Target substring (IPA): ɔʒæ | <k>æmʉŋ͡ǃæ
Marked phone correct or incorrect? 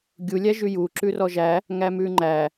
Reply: incorrect